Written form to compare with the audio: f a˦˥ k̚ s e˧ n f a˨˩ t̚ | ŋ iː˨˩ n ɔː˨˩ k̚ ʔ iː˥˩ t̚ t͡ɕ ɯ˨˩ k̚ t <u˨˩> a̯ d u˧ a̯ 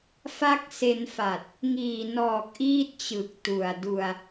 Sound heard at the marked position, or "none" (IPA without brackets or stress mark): u˨˩